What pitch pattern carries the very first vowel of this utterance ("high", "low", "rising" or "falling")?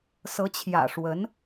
rising